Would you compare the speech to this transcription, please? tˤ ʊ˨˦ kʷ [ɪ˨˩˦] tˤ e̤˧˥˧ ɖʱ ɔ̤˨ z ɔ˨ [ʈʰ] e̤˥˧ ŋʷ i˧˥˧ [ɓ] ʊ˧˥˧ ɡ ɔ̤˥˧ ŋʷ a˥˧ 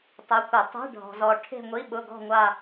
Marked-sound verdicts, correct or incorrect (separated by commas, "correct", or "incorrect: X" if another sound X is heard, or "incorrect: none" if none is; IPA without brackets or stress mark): correct, correct, correct